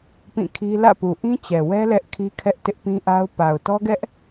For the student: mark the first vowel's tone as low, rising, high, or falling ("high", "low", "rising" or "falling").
falling